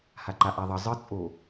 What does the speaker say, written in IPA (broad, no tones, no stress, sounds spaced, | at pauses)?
h a ǃ a ʔ a ðˤ ʌ zˤ ɯ t͡sʼ o